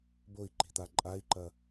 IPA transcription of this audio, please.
boi̯ǃi̤t̪a ǃʼai̯ǃɐ

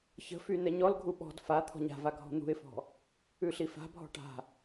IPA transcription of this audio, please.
çə̤fy nɛɲɔlɡʱu ɓɔ̤d fa t̪ʰɔ̤ɲa̤va ɡʱɔ̤n̪ṳɪ̯fɔ̤ | ʉɬifa̤ bʱɔ̤ʈa̤

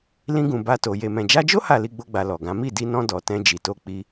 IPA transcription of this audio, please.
lĩ˧ɡũ˨ ba˧to˨ je˨mɛ̃˨d͡ʒa˧d͡ʒo˦ ha˦˨li˧ɡ͡bo˧ɡ͡ba˨ lɔ˨ɡã˨˦ mi˦˨di˧nɔ̃˧ dɔ˨ tɛ̃˧d͡ʒi˨to˧ k͡pi˧

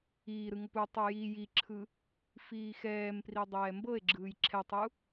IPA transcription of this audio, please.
iːɾɯ ŋɤputˤu ji jiǁʰɯ | fiːxɛːmpri dˤɛːmbɤe̯ɡ͡ǁɯːj ǁʰɛtˤu

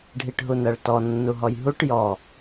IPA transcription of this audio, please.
ɖʱiʈɦunɜɭtɔ nːuɦɔjɦuʈ jɔ

